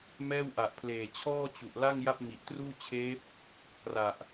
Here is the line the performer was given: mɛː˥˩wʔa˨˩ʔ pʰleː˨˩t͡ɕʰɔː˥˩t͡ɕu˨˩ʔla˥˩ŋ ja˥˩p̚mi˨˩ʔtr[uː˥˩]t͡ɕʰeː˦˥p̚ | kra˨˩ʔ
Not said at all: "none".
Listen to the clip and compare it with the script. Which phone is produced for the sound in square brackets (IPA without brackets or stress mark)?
uː˥˩